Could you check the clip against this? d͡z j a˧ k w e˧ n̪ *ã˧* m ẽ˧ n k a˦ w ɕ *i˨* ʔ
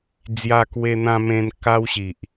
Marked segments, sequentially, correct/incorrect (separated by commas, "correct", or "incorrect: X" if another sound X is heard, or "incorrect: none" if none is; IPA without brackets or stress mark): correct, correct